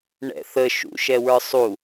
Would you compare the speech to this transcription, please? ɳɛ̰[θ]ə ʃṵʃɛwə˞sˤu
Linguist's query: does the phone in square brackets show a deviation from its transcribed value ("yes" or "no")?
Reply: no